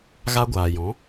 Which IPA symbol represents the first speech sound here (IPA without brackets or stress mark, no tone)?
ɣ